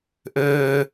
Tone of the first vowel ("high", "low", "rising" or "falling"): high